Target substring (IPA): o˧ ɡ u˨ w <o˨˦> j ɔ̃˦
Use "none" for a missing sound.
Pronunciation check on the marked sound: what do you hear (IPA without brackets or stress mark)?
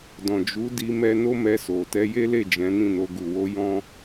o˧